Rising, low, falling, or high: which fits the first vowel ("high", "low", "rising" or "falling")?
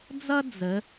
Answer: high